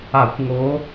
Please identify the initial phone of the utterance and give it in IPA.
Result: a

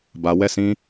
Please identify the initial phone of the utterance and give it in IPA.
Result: b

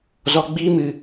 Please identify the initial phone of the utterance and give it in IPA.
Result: z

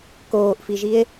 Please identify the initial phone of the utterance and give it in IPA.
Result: k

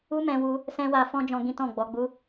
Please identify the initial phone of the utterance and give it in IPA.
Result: u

